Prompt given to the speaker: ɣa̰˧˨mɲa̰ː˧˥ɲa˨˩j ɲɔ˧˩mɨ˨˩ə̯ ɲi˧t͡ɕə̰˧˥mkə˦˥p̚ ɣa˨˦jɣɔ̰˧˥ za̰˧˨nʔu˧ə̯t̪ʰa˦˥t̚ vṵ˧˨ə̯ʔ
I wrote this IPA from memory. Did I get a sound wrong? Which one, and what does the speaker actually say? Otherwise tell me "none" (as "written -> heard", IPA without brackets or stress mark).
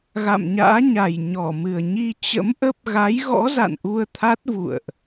k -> ʔ